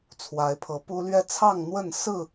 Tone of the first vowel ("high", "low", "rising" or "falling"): rising